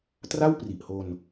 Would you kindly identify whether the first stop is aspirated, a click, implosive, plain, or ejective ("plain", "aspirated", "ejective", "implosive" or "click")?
plain